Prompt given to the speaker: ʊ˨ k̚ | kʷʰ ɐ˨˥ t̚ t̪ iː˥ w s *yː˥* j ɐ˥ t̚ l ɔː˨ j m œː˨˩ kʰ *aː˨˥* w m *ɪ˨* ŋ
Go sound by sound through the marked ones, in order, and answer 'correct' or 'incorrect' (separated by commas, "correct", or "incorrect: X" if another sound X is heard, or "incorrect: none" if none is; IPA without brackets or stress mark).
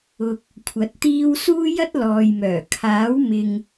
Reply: incorrect: uː˥, correct, correct